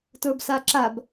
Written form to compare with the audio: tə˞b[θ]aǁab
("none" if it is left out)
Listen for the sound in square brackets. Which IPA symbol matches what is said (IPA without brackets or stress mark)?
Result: s